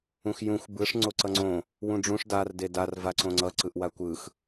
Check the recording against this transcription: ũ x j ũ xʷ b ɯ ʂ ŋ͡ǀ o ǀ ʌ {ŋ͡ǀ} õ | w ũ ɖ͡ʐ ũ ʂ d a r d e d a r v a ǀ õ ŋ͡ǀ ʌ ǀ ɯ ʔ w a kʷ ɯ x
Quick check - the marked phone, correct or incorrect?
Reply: correct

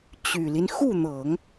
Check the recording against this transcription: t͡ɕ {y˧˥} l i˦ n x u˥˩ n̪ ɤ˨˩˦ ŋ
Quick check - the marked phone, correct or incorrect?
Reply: incorrect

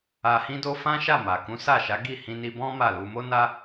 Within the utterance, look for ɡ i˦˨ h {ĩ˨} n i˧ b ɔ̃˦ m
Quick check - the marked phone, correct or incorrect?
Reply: incorrect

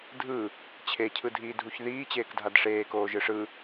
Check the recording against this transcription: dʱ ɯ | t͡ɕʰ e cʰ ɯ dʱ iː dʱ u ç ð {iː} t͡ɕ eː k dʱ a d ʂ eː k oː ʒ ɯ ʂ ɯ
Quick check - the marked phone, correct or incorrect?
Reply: correct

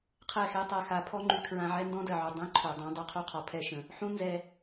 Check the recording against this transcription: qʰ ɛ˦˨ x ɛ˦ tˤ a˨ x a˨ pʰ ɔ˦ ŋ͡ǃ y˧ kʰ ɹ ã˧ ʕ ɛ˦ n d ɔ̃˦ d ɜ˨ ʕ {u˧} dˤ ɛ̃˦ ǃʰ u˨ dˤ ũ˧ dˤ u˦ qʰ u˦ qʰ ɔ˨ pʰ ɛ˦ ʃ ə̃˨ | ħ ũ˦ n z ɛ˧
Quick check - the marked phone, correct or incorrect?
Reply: incorrect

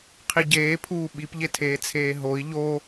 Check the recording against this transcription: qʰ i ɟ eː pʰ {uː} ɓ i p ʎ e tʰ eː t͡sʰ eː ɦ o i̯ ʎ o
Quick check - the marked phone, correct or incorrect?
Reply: correct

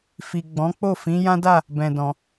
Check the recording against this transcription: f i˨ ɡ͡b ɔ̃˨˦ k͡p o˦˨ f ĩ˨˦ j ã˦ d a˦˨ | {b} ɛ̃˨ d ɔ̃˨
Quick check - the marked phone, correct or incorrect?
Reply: correct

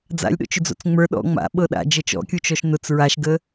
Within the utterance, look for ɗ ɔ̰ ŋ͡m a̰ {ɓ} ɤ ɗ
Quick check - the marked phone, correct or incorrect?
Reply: correct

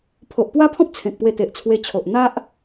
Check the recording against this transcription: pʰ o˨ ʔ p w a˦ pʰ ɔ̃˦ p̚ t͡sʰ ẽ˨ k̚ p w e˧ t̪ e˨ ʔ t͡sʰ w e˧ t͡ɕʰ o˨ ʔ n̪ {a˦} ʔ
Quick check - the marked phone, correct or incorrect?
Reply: correct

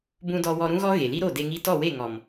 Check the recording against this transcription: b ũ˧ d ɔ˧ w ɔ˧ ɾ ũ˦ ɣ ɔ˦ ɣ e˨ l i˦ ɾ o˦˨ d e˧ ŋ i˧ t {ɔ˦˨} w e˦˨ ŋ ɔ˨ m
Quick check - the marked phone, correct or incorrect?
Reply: correct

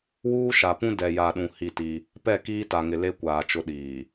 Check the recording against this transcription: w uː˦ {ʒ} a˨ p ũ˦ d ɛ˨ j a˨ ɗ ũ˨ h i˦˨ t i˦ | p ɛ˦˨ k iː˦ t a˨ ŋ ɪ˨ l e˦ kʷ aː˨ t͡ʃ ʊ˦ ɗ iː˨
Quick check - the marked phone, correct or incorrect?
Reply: incorrect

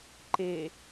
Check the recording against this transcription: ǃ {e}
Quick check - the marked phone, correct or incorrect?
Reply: correct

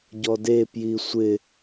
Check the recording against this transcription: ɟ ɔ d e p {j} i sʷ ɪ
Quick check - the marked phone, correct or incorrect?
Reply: correct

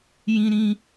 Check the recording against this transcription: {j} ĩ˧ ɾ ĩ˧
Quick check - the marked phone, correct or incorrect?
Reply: correct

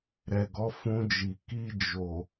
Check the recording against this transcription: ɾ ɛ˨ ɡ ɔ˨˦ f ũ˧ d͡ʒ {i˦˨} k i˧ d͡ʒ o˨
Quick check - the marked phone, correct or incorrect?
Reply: incorrect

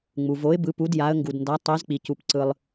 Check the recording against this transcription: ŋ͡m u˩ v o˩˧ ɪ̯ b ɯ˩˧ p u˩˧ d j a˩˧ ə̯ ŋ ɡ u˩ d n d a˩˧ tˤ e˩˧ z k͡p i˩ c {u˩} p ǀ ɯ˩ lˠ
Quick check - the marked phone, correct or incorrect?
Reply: correct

